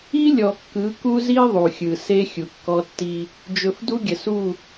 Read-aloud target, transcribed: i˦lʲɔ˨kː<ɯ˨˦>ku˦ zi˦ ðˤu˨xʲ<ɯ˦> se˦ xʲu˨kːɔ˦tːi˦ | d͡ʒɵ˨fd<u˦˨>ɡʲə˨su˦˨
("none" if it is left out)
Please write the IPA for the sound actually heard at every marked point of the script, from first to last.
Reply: ɯ˨˦, ɯ˨, u˦

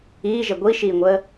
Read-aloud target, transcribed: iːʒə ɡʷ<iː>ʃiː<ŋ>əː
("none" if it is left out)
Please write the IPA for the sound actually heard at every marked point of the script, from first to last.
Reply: i, ŋʷ

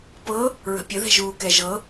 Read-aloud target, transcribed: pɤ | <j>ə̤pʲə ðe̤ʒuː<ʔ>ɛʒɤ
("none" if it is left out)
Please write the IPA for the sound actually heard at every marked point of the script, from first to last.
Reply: ɹ, k

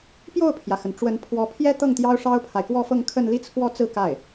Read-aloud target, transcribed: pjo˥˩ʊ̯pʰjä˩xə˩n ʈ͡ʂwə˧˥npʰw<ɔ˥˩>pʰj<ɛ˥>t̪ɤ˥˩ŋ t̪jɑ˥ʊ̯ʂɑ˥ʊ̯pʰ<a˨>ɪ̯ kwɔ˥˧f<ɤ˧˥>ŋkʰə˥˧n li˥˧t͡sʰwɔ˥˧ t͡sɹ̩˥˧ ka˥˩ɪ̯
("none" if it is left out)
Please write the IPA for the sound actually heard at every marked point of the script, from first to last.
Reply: ɔ˧˥, ɛ˥, a˨, ɤ˥˧

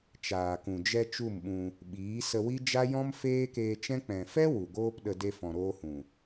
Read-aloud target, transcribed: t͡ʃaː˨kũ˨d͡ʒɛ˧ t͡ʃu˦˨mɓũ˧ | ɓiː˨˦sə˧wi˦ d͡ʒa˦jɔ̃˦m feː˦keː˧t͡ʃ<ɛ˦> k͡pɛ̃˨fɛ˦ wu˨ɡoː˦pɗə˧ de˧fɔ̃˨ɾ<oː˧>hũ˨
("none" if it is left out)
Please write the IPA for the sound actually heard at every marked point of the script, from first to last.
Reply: ɛ̃˦, oː˧

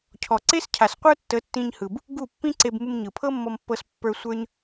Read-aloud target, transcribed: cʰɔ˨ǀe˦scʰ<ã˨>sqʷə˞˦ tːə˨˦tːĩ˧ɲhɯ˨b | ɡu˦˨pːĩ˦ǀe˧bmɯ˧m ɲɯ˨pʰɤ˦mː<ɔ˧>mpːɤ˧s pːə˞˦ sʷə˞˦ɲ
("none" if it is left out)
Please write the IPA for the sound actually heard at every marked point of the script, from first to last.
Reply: a˨, ɔ˧

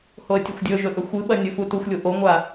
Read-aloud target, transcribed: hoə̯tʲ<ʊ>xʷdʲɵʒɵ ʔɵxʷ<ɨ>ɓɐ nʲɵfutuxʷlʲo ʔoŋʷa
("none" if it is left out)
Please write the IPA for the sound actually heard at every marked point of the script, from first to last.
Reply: ɵ, ɨ

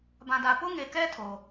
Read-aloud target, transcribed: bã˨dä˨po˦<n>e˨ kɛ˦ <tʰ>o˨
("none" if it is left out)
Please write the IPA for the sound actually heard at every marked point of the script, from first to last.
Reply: ŋ, tʰ

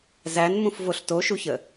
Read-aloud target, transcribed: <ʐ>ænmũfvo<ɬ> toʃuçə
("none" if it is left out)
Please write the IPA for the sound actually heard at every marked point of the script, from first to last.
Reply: z, ɬ

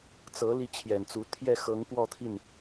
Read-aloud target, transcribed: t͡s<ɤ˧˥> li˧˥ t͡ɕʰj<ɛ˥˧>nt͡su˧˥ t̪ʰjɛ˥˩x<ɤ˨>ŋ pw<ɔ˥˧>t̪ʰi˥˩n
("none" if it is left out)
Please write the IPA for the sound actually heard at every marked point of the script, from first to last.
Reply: ɤ˧˥, ɛ˨˩, ɤ˧˥, ɔ˥˧

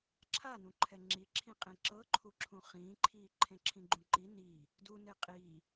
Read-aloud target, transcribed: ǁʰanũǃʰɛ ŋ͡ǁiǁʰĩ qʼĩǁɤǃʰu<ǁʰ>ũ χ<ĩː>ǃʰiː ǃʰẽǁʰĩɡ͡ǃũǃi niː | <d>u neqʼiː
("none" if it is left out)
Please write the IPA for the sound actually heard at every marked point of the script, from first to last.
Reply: ǁʰ, ĩː, d

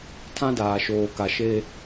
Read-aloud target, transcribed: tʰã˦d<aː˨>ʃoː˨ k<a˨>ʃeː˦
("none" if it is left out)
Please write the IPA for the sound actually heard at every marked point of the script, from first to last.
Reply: aː˨, a˨

